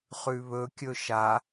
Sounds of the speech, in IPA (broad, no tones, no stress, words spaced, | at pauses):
χʉβɵ kʲɵʃa